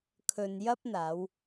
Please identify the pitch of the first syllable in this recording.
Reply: low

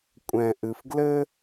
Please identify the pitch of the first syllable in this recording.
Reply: low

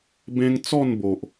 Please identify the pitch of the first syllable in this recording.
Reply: high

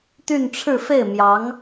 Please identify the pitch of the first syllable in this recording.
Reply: falling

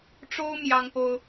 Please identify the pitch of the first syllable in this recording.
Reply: high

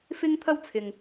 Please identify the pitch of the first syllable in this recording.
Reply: high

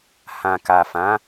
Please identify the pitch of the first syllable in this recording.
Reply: low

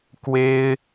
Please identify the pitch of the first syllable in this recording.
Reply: high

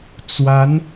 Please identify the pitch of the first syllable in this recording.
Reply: rising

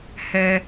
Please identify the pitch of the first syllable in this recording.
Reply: low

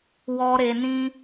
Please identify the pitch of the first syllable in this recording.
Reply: high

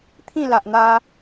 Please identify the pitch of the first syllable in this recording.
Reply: falling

